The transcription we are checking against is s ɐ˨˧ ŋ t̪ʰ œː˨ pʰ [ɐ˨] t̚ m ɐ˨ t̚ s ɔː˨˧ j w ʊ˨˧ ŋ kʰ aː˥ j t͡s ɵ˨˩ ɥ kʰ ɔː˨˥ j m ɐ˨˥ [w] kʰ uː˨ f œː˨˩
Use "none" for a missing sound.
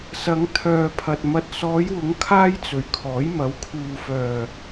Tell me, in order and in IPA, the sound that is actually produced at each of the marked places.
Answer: ɐ˨, w

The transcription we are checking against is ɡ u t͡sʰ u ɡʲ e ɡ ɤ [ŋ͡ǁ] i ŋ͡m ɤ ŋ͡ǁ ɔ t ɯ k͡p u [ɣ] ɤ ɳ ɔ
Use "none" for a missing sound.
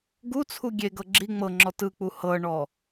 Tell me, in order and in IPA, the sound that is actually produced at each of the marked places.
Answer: ɡ͡ǁ, h

